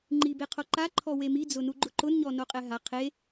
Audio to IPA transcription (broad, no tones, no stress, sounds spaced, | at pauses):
ŋ͡ǃ i b e qʰ o ǃ a ǃʰ ɔ w e m i d͡z ʊ n u ɡ͡ǃ ʊ ǃ ʊ n ɲ ɔ n o qʼ ɛ ɦ a qʰ e